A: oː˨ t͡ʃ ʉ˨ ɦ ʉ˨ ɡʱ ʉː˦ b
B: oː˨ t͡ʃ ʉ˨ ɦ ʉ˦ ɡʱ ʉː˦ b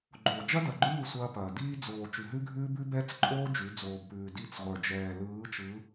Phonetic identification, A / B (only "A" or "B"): B